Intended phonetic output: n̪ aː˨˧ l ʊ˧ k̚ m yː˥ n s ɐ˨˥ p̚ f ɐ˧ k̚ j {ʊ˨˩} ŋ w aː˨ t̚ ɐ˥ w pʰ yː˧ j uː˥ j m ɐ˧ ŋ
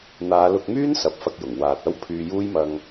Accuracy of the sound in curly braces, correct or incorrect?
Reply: correct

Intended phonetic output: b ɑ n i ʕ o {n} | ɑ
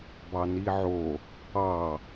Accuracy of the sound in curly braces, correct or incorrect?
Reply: incorrect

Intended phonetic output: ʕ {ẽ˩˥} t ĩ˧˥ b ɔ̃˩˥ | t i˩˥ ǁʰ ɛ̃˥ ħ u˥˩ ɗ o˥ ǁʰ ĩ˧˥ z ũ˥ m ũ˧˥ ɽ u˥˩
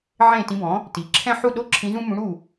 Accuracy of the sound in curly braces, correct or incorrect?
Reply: incorrect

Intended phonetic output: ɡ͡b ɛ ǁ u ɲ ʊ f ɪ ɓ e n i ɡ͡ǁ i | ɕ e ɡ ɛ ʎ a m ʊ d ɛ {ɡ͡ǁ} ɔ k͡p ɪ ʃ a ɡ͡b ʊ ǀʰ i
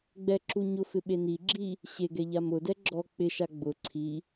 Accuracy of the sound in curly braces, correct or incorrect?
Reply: correct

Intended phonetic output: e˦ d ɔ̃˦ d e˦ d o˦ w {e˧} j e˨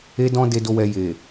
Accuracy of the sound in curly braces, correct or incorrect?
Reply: incorrect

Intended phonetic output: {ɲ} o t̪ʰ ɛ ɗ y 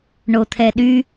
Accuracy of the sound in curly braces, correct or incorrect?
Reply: incorrect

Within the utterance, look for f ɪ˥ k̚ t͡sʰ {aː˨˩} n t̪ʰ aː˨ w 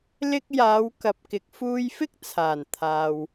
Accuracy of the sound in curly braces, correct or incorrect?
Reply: correct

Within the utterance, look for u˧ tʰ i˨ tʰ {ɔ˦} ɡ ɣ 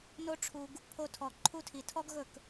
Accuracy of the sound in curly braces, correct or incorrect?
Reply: correct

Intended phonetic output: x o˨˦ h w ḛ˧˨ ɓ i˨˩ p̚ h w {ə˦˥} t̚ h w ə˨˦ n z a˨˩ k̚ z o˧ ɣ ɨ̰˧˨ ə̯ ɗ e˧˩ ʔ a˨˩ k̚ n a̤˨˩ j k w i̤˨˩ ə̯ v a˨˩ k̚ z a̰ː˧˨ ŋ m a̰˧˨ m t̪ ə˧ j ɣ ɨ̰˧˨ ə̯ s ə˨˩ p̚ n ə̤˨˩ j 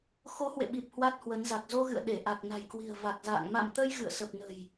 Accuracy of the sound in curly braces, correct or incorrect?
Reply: incorrect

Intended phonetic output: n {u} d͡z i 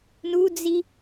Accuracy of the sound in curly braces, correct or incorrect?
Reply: correct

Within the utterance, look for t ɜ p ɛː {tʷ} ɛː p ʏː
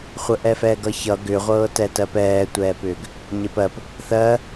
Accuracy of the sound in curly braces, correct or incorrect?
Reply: correct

